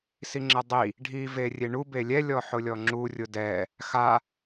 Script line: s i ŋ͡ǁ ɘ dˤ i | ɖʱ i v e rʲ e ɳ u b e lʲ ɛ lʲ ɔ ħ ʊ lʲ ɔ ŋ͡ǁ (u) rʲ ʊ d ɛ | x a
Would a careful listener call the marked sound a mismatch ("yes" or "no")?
no